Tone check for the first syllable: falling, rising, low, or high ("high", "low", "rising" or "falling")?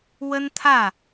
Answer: high